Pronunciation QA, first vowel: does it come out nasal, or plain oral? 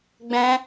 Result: nasal